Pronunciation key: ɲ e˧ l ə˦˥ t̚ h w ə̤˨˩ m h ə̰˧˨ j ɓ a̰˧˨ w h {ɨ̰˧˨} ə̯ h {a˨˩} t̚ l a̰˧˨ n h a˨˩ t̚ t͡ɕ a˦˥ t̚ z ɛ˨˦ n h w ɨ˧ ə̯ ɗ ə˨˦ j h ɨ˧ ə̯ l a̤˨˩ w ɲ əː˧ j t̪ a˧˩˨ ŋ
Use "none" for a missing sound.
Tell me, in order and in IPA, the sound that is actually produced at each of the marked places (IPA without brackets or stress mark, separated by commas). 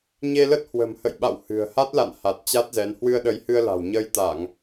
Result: ɨ̤˨˩, a˦˥